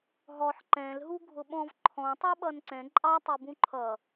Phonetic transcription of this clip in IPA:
ɦ ɔ ħ ǃ ɛ̃ l ɦ u ɡʱ ʊ ɓ ɔ̃ v ǃʰ ɔ̃ tˤ ɛ ɓ ʌ n ǀ ɛ̃ ǃʼ ɑ tˤ i b ũ ǃʰ ʌ

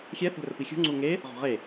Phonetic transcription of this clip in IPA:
xʲ ɛ θ ɛ̤ r ə p i xʲ ṳ ŋ͡ǀ u ŋ e | ʁ ɔ̤ ʁ e

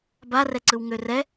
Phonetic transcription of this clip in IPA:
b a r ɛ ǀ ɯ w ŋ ø r ɛ

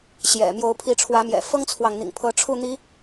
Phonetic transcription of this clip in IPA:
ɕ j ɛ̰˨˩ m j o˨˦ ʊ̯ pʰ i˨˦ ʈ͡ʂʰ w ä˨˦ m j ɛ̰˨˩ f ɤ˦ ŋ t͡sʰ w ɑ˨ ŋ n̪ ḭ˨˩ ŋ pʰ ɤ˨˦ ʈ͡ʂʰ u˥˨ n̪ i˨˦

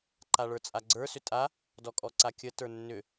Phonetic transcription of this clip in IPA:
ǃ a ɭ ə˞ t͡sʼ a ɡ͡ǀ ə˞ s ʏ tʼ a | d ɔ kʼ ɔ ǀ a kʲ ə t ə˞ nː ʏ

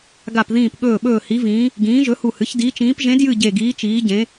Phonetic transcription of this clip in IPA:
ɡ a˧˩ p ð ĩː˧˩ p ɠ ɵː˧˩ ɓ ɵː˧˩ h i˨˦ v ĩː˨˦ | ɡ ĩː˨˦ ʒ ɵ˨˦ h u˧˩ h ɨ˨˦ ç d iː˨˦ t͡ʃ ĩː˨˦ p ʒ ẽ˨˦ d j ɨ˧˩ ɟ e˧˩ ɡ iː˨˦ t͡ʃ iː˨˦ ɟ ẽ˨˦

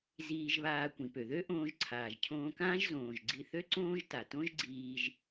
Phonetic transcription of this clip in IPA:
z iː˧ ʒ β aː˧ kʷ ĩ˩ p ø˩ ð ø˥ ʔ õː˧ ʒ ǀʰ aː˩ ʒ cʰ õː˧ k ãː˥ ʒ z õː˩ ʒ ɡ͡ǀ i˧ θ ø˥ ǀ õː˥ ʒ t a˩ t õ˥ ʒ ɡ͡ǀ iː˧ ʒ

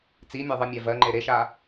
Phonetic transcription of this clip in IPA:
t͡s i mʲ æ ðˤ ɯ mʲ æ v ɜ ŋ͡ǃ e ɾ e ʃ a

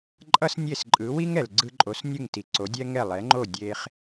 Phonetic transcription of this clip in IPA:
ǃʼ ʌ˥ s nʲ e˥˩ s ǃʼ ɯ˩˥ w i˥ ŋ ɛ˩ l ɡ͡ǀ ɯ˧ ǃʼ o˩˥ s nʲ ɯ˥˩ ŋ t i˩ ǀ o˩˥ dʲ ɛ˥ ŋ ɛ˥˩ lˠ ɛ˩˥ ŋ͡ǃ o˥˩ dʲ e˧ χ

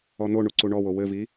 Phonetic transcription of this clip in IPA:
ɔ n̪ o ɳ u ǀ u ɳ ɔ w o w ɘ v i

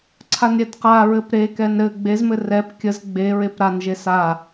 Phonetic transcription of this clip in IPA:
ǀʰ a n ɾʲ ɛ d q a ɹ ɘ p ɾ e k ɛ n ɾ ɘ ɡ͡b e z m ɘ r ɛ p kʲ ə z ɡ͡b e ɹ e p ɾ a n ʒ e s a

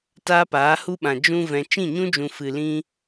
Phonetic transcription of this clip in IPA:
t aː˦ p aː˨˦ h u˦ ɓ ã˨ d͡ʒ ũ˧ v ɛ̃˨ t͡ʃ ĩ˦˨ ɲ ũ˦ d͡ʒ ũ˨ f ɨ˨ l ĩ˦

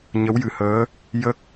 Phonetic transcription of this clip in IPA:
ɲ ə˧˥ w j ɨ˨˩ h əː˧˥ | j ə˦˥ k̚

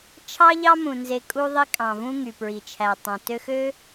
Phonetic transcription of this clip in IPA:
t͡ʃʰ ɑ˦ ʎ ɑ˦ m ũ˨ n z e˧ kʼ u˧ ðˤ i˧ kʼ ɑ̃˨ v ũ˧ ŋ y˨ p ɹ i˨ t͡ʃʰ æ˨ tˤ ɑ̃˨ t ø˧ x ø˦

